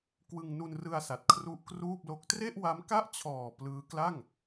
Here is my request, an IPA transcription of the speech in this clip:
k w ɯ˧ ŋ n u˧ n r ɯ˧ a̯ s a˨˩ t̚ kʰ r u˦˥ ʔ k r uː˥˩ p̚ l o˦˥ k̚ t r e˥˩ ʔ w a˦˥ m k a˥˩ ʔ t͡ɕʰ ɔː˨˩ p l ɯː˦˥ k l a˥˩ ŋ

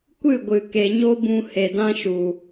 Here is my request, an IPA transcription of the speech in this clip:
kʷ ɨ˦˨ ɡʷ ɨ˨ k e˨ ɲ o˦ b ũ˧ h e˨ d ã˦ ʃ u˨

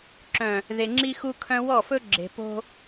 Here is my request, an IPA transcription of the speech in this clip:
ǁ œ̃˨ | ð e˨ ŋ͡ǁ i˦ x u˦ kʰ œ̃˦ w ɔ˦˨ f ɵ˦ ɡ͡ǁ e̤˨ p o̤˦

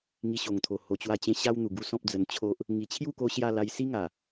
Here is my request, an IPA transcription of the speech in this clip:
ŋ i˧ ɕ o˨˩ ŋ t̪ʰ o˨˩ h o˨˩ t͡ɕ w a˧ t͡ɕ ẽ˧ ɕ a˦ w n̪ u˨˩ ɡ u˥˧ s ɔ̃˦ p̚ d͡z ə˧ n t͡ɕʰ o˦ ʔ | ŋ i˨˩ t͡ɕʰ j u˥˧ k o˧ ɕ j a˥˧ l a˧ j s i˦ ŋ a˨˩

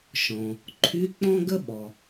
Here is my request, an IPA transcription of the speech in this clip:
ʃ ɔ̃˩ | ǃʰ y˧˥˧ k͡p ɔ̃˥ ɡ ə˥ ɓ ɔ˩

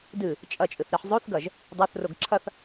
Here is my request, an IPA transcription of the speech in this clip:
d ɨ | t͡ʃʼ ɐ t͡ʃʼ ɨ θ ɾ e ħ zˤ o θ ɡ ɐ ʒ | dˤ o θ r o ɡ ǁʰ ɐ θ

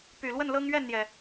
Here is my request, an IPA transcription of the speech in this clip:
p y˨˩ l w ə˥˨ n l ɤ˦ ŋ ɥ ɛ˥˨ n n̪ j ɛ˩

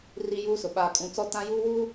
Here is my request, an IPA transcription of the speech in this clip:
r i˦ j uː˦ s ʊ˨ ɓ aː˨ kʼ ũ˨ t͡s ɔ˦ t ã˦ j uː˦ w uː˦

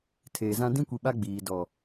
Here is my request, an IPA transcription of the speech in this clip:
tʰ eː˨ z ã˦ d ĩ˦ kʷ i˨ ɓ a˦ ɡ͡b iː˨ d ɔ˨

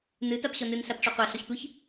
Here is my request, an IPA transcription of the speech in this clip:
n ɨ t a p ɕ ɔ n ɨ n ɬ a p ʈ͡ʂ ɔ qʷ a ɬ ɔ ç tʷ ɨ ç

